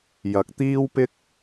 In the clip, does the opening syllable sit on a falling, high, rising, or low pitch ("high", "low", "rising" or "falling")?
rising